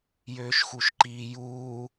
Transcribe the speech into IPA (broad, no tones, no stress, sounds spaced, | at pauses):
j øː ʃ x u ʃ ǃ iː j uː